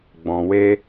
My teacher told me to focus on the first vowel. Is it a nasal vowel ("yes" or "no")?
yes